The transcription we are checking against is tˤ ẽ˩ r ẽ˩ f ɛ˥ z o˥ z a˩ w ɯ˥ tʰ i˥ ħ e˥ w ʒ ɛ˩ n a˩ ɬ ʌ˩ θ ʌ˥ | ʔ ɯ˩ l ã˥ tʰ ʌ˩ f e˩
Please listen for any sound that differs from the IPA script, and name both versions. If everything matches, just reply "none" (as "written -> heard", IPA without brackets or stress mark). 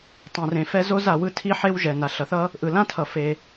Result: none